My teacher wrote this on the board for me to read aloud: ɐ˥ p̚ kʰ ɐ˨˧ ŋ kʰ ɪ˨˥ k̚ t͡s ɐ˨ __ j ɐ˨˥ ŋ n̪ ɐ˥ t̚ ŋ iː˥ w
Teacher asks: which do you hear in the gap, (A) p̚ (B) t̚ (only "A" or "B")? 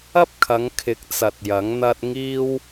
B